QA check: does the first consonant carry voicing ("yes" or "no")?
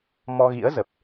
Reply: yes